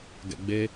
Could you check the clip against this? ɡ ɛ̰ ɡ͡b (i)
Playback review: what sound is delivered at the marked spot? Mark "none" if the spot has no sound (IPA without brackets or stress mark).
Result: e